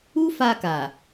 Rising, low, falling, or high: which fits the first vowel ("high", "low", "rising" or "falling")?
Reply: high